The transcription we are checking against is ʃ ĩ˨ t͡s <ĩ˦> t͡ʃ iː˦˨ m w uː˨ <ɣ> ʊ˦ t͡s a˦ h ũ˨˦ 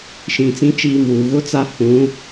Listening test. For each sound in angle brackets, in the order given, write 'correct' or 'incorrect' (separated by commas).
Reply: correct, correct